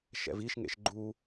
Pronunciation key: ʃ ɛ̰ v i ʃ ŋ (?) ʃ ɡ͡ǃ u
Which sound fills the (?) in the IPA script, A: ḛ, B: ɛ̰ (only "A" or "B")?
A